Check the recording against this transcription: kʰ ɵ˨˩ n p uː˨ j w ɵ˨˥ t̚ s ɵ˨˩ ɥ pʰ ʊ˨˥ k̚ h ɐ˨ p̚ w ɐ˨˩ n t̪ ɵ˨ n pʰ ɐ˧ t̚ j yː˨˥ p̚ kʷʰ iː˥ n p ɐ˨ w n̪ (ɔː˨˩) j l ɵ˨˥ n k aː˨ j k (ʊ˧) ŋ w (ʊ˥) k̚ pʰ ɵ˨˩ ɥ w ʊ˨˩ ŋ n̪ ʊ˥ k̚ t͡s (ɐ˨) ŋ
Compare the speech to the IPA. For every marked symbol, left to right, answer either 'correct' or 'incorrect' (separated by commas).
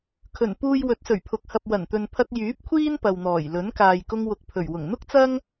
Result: correct, correct, incorrect, incorrect